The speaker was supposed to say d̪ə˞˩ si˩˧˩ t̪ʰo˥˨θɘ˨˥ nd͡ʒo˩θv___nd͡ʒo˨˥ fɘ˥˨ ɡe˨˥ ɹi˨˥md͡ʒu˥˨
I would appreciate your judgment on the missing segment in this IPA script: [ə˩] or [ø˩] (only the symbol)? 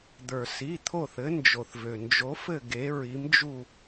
ø˩